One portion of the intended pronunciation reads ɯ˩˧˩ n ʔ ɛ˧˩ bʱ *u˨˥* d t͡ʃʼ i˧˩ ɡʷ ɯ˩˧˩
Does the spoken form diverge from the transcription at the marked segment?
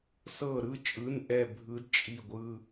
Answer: yes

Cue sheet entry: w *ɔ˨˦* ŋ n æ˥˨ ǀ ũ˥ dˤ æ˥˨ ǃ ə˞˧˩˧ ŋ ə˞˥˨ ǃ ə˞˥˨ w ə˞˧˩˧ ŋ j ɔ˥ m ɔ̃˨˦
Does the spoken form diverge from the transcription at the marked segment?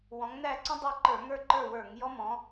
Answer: yes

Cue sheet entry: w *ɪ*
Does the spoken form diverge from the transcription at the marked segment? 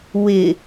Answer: no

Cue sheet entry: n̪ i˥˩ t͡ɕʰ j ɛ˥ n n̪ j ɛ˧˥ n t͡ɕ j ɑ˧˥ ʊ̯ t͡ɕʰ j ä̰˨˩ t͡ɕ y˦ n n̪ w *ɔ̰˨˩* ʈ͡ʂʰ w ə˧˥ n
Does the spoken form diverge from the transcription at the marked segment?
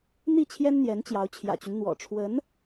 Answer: no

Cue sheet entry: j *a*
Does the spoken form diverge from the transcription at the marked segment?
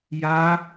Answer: no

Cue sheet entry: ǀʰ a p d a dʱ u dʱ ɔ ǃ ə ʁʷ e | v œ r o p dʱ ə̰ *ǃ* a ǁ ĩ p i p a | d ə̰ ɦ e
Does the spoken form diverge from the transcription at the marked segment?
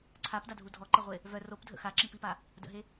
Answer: yes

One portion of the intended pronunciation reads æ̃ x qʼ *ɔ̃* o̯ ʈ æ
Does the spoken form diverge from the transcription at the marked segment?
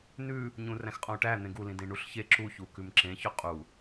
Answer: no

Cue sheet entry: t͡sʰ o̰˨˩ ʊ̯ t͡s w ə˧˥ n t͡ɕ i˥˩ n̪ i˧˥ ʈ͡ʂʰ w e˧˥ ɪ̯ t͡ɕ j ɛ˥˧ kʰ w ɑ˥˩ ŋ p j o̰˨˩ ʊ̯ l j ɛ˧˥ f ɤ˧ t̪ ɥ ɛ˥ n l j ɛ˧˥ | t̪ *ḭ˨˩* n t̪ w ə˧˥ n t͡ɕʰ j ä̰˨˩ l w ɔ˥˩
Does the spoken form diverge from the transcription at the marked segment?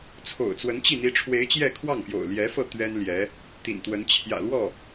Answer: no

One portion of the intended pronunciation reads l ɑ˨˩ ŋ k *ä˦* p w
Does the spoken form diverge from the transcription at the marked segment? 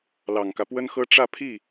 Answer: no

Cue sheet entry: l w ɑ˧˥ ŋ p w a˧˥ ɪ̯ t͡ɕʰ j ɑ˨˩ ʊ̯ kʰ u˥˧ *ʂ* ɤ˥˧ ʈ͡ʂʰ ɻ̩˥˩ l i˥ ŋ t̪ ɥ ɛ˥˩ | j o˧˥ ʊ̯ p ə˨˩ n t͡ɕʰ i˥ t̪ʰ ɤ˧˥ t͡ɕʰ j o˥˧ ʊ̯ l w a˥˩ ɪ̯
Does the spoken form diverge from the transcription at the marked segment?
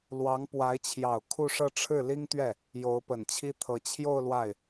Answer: no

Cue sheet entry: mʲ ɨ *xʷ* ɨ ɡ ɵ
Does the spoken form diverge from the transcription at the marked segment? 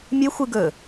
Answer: no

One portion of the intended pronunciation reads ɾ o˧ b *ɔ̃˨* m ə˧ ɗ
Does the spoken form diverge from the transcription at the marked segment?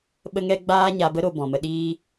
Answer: no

